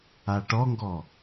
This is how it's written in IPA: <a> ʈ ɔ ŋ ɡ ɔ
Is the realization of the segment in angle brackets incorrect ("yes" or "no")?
no